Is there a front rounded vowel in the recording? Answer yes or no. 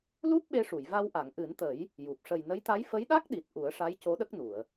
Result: no